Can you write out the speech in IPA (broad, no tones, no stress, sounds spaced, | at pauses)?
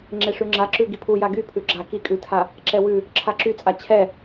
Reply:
ŋ͡ǁ e ʂ ʉ ŋ͡ǁ a ǁ ʉ ɡ i pʰ u j a ɡ y pʰ ʉ ɡ͡ǁ a k i kʼ ʉ tʰ a | ǁ ɛ w ʉ | ǁʰ a ǁ y t͡sʼ a t͡ɕʰ ɛ